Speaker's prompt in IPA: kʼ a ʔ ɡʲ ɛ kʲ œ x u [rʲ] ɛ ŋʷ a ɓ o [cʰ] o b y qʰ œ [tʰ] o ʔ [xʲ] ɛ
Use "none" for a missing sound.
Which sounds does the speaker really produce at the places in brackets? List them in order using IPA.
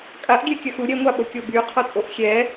ɾʲ, kʲ, tʼ, xʲ

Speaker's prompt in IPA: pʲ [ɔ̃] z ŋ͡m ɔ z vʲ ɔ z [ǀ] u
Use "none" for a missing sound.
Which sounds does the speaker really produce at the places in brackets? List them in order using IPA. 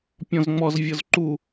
ɔ̃, ǃ

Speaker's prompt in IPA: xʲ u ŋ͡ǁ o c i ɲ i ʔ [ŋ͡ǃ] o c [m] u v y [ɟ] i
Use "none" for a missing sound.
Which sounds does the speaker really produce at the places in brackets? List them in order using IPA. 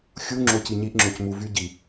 ŋ͡ǁ, m, ɟ

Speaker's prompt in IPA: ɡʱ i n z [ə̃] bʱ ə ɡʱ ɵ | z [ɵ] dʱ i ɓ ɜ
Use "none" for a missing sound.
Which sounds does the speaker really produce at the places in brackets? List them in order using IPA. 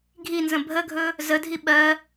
ə̃, ə

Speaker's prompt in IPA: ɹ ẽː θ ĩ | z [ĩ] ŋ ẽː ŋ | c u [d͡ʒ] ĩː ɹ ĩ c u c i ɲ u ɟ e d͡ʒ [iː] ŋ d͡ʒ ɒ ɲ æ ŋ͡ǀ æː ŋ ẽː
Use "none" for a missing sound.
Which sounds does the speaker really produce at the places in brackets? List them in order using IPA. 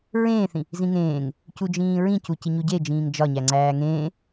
ĩ, d͡ʒ, ĩː

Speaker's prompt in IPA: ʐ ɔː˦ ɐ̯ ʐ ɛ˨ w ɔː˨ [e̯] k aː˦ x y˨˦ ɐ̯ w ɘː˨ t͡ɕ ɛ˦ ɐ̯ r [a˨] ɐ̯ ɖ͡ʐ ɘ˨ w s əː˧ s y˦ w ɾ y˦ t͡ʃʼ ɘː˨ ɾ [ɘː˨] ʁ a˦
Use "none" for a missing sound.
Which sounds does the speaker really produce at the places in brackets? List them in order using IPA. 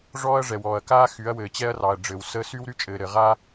ɐ̯, ɑ˨, ɘ˨

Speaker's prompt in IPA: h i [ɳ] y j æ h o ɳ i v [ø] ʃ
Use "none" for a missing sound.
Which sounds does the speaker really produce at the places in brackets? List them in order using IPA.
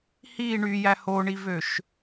ɳ, ø

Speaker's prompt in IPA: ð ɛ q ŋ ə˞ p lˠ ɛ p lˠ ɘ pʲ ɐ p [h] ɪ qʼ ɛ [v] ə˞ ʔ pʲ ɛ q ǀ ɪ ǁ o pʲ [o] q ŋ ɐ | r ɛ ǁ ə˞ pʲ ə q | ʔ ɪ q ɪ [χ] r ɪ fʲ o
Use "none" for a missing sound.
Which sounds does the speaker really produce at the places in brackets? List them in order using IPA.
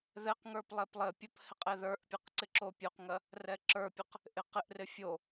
h, ð, o, ʔ

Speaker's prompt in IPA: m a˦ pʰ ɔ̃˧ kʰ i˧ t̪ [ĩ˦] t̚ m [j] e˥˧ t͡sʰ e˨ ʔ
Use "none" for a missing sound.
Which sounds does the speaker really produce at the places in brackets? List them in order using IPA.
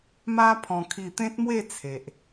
ẽ˦, w

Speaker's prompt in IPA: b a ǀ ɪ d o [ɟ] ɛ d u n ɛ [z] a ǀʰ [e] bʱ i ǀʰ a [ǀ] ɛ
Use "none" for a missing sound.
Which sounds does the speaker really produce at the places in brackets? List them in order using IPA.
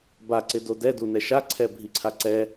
d, ʃ, ɛ, ǀ

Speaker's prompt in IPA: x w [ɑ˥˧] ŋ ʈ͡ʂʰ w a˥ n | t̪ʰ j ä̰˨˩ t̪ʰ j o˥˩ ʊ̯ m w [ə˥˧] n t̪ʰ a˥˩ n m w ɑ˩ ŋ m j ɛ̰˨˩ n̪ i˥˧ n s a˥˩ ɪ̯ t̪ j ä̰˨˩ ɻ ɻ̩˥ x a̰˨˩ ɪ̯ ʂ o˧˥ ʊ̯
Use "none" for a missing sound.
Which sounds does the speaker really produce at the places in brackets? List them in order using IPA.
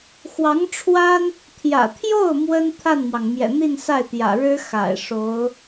ɑ˧˥, ə˥

